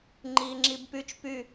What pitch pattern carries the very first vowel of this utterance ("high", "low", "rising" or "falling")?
low